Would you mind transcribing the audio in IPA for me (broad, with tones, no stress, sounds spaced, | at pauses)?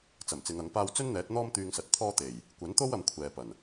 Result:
t͡s ɐ˨˩ m t͡s ɪ˨˧ ŋ ɐ˨˥ ŋ p aː˥ w t͡s ɵ˥ n n̪ ɛː˨˥ t̚ n̪ ɔː˥ m t̪ yː˧ ŋ s ɐ˨˥ t̚ t̪ʰ ɔː˥ t̪ e˨˩ j | kʷ ɐ˨˥ n t̪ o˥ w ɐ˧ m kʷʰ ɛː˨ p ɐ˨˩ n